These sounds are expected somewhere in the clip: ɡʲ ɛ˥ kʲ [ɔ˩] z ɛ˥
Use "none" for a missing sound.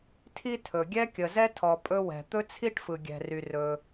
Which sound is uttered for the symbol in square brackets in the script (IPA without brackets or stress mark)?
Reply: ə˩